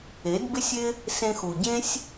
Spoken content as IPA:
e˨˦ d b ɪ˦ sʲ ɪ˦ | s ẽ˧ x u˨ ɟ ẽ˦ sʲ

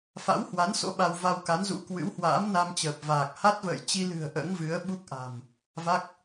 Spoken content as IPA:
f a̰˧˥ w h w a˨˦ n s o̰˧˥ ɓ a˧ w v a˧ w k a˨˦ n z ṵ˧˥ k w ɨ̰˧˥ w h w a̰ː˧˥ m n a˧ m t͡ɕ əː˨˩ p̚ v aː˨˩ k̚ h a˦˥ t̚ v ə̰ː˧˨ j t͡ɕ i˧ l ɨ̤˨˩ ə̯ ʔ ə̰ː˧˥ ŋ v ɨ˨˦ ə̯ ɓ u˦˥ k̚ ʔ a̤˨˩ m | v a˦˥ k̚

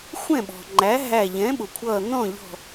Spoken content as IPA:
xʷ ɛ̃˥˩ ɓ ɔ̤˩ ŋ͡ǃ æ˩˥ ɦ æ˧˩ ʎ ɛ̃˩˥ ɓ ʊ˩ kʷʰ ʌː˧˩ n̪ ɔ̃˥˩ ʎ ɔ̤˧˩

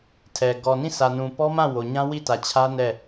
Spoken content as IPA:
tʰ ɛ˨ ɡ ɔ˨ n ĩ˦˨ sʰ ä˨ n ũ˨ p ɔ˦ m ã˦˨ w o˨ ɲ ã˦ w i˦˨ t ä˨ t͡ɕʰ ä˦ n ɛ˦˨

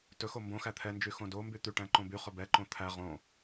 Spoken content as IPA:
t ɵ x o m b õ x æ t̪ʰ ɛ n d͡ʒ y x õ d o m b y t̪ y ʈ æ̃ ǃ õ b y χ ɵ b ɛ ǃ õ t̪ʰ æ ʁ õ

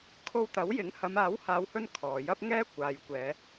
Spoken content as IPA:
kʰ o˧ w t̪ ɐ˨˥ w j ɪ˨˥ ŋ h ɐ˨˧ m aː˨˥ w h aː˨˧ w h ɵ˧ n kʰ ɔː˨ j ɐ˥ p̚ ŋ ɛː˥ kʷ aː˨ j kʷ ɛː˨˧

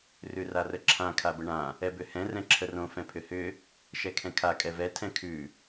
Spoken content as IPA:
r ʉ r a r ə ǁʰ ã kʰ a b ə ɳ ã | ɛ b ʏ h ɛ̃ r ɛ̃ ǁʰ ə r õ f ɛ̃ pʰ ʏ h ʏ | ʃ ɛ kʰ ɛ̃ kʰ a kʼ ɛ v ɛ tʰ ɛ̃ kʰ ʉ

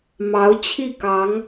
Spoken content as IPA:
m ɑ˧˥ ʊ̯ t͡ɕʰ i˥˩ k ɑ˧˥ ŋ

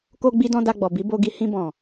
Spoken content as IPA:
k o˦ ɡ͡b i˦ d ɔ̃˦ d a˧ ɡ͡b ɔ˨ b i˨˦ b o˧ ɡ i˧ h ĩ˧ b ɔ̃˨

